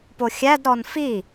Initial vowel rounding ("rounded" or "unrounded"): rounded